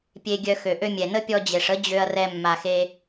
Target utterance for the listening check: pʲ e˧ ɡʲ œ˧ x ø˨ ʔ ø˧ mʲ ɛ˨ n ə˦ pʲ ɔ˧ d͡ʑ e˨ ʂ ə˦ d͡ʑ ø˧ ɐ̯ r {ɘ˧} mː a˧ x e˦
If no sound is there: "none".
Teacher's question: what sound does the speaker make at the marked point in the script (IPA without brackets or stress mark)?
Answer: ɛ˧